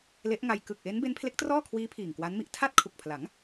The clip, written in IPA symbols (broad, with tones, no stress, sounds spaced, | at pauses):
l e˦˥ ʔ ŋ a˧ j k ɯ˨˩ k̚ ʔ e˦˥ n b e˦˥ n pʰ l e˦˥ k̚ t r ɔː˥˩ kʰ w iː˦˥ pʰ iː˨˩ ŋ k w a˦˥ n m i˥˩ ʔ tʰ a˥˩ t̚ kʰ u˨˩ k̚ pʰ l a˩˦ ŋ